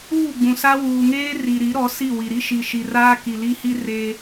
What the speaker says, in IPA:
uː˦˨ ɡ͡b ũ˨ s a˦ w uː˨ ŋ eː˦ r i˨ ɾ i˨˦ ɾ ɔ˨˦ s i˦˨ w i˨ ɾ i˦ ʃ i˨ ʃ i˨ r aː˦ k i˨ l i˦ h i˦ r eː˦

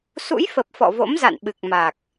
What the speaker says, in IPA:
s ṵ˧˥ j f ə˨˩ p̚ f ɔ̰˧˨ v o̰˧˥ m z a̰˧˨ n ɓ ɨ˨˩ k̚ m a˨˩ k̚

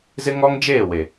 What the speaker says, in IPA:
z ɪ˦ ŋ ɔ˦ ŋ d͡ʒ eː˦˨ w e˨

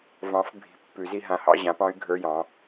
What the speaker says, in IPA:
v ɑ̃˨˥ f bʱ i̤˨˥ pː ʉ˨˩˦ z i˥˧ ɦ ã˨˥ h ɑ̰˥˧ ʑ ã˨˥ p ɑ̃˦˥ y̯ ɡʱ ə˞˧˥˧ j ɑ̃˨˥

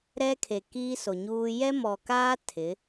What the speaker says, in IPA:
ɾ ɛ˦ kʰ e˨ k iː˦ s o˨ ɲ uː˦ j ɛ˦ m ɔ˨ k aː˦ tʰ ɪ˨˦

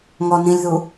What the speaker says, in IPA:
ŋ ɔ n ĩ lʲ ð u

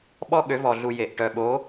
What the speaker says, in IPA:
ɓ ɔ˦ ɠ ø˨˦ v ɔ˨ ɮ u˨ j e˨ ʔ ʈ œ˨ ɓ o˨˦

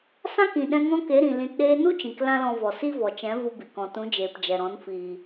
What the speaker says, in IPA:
s ã˦ k ĩ˨ ɗ ɛ̃˧ ŋ ɔ̃˦ k e˨˦ ɾ ĩ˨ l ĩ˨ t ɗ eː˧ n u˦ t͡ʃ ĩ˨ k l ã˦ l ɔ̃˧ v ɔ˨ s i˦ v ɔ˨ t͡ʃ ɛ̃˨˦ v u˧ b i˨ k ɔ̃˨ t ũ˨˦ d͡ʒ eː˨ p d͡ʒ ɛ˨ ɾ ɔ̃˨˦ n f iː˨

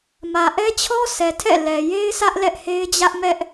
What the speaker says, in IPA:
m ä˨ ʔ ɛ˦ t͡ɕʰ ɔ˦ s ɛ˨ tʰ ɛ̰˦˨ l ɛ˨ j e˦ ɪ̯ s ä˦ ʔ l ɛ˦ ʔ h e˦ ɪ̯ d͡ʑ ä˦ ʔ m ɛ˦ ʔ

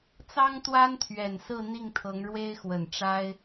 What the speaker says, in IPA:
t͡s ɑ˥ ŋ t̪ w a˥ n t̪ʰ ɥ ɛ˨˩ n s ɹ̩˥˧ n̪ i˥˩ ŋ t̪ʰ ɤ˧˥ ŋ ɻ w e˥ ɪ̯ x w ə˨˩ n ʈ͡ʂ a˥ ɪ̯

